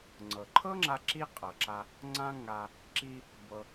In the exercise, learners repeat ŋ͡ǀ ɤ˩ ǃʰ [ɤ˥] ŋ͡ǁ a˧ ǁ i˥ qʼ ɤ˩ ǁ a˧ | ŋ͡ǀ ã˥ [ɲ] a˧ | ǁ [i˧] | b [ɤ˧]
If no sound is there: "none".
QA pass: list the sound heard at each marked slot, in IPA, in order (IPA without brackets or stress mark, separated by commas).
ɤ˥, ŋ, i˧, ɤ˧